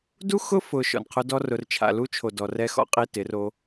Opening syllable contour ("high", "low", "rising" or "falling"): high